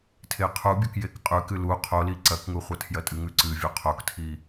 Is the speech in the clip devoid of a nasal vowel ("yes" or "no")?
yes